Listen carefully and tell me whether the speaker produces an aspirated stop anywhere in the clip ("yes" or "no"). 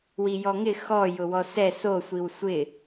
no